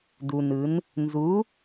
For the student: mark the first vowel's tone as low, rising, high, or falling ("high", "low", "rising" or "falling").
low